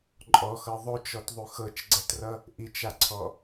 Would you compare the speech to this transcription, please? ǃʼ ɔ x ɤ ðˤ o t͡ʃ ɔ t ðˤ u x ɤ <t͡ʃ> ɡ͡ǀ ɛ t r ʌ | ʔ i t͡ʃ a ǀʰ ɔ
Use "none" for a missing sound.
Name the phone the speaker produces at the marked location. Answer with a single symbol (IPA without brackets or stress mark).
t͡ʃ